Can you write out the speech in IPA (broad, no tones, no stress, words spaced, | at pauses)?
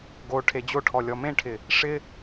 ɡo ʈʰed͡ʑoʈʰɔ lʲɔmẽʈʰɪ | ʂɪ